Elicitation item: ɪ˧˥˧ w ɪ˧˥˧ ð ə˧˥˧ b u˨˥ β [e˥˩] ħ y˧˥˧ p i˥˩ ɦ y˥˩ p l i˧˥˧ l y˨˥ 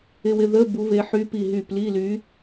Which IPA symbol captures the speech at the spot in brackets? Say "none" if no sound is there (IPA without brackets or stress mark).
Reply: e˨˥